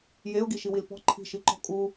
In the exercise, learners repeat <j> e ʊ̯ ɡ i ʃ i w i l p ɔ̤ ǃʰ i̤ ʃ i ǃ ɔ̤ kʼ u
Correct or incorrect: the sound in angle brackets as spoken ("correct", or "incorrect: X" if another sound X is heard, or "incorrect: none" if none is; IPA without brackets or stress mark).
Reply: correct